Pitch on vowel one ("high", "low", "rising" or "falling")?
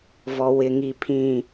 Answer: low